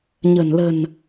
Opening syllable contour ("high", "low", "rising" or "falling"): low